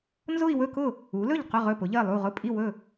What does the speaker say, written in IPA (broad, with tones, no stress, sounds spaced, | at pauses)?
n z ʊ˥˧ i̯ w ɵ˥˧ k ʊ˥˩ | u˩˥ l ɵ˥˩ ʎ q ʊ˥˩ ʁ ɵ˥˩ p ʊ˩˥ ʎ ɜ˥˩ lˠ u˥˩ ʁ ʊ˥˩ pʼ i˥˩ w ɵ˥˩